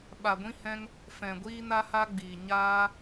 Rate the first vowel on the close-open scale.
open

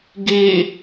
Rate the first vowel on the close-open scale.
mid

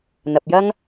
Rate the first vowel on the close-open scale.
open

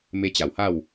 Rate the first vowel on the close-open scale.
mid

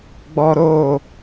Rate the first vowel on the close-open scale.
mid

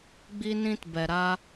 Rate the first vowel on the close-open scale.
close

